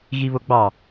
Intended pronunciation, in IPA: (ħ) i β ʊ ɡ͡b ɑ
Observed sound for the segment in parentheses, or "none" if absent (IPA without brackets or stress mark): ɣ